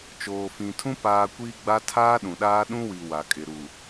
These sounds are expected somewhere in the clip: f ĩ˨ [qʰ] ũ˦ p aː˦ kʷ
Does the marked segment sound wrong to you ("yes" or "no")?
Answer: yes